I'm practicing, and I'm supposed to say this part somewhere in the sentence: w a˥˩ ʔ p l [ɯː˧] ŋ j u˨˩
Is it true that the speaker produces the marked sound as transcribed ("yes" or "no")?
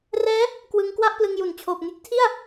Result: no